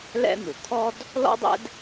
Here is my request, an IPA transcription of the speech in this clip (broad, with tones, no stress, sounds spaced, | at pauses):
l ɛ̰˥ n̪ u˩ t̪ʰ ɔ˥ d | l ɔ̰˥ dˤ ɛ̰˥ d